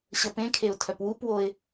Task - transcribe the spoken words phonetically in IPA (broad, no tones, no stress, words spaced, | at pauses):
ɕəpẽkʰeʊ̯ tʰœpwupwoɪ̯